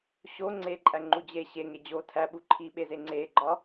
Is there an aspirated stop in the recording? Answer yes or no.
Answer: yes